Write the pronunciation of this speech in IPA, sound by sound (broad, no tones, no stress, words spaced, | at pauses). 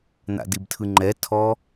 n̪a̰dibtʰɯŋ͡ǃɛ tʰɔ